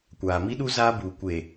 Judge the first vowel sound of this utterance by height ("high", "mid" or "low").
low